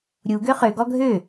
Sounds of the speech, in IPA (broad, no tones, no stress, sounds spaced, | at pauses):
ɾʲ u ɡ ø χ ø ɡ ɔ ɡʱ ø